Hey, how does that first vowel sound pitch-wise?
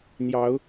rising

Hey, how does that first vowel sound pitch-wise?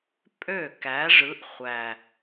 falling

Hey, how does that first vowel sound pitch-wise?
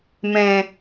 low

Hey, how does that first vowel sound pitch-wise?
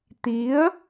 rising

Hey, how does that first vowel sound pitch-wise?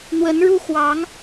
rising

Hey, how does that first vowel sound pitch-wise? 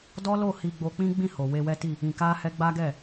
high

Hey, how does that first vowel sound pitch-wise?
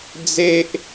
high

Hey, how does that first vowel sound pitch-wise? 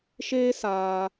high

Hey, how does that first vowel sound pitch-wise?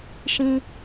high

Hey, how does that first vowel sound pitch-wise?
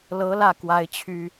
rising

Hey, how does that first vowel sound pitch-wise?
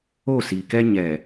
falling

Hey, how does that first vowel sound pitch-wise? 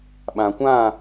low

